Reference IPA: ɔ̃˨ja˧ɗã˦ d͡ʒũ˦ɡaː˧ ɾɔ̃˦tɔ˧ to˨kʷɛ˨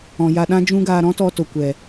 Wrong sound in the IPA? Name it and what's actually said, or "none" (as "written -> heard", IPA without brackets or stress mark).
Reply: none